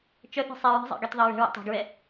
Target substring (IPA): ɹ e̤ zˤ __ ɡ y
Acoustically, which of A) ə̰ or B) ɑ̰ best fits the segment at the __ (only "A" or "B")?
B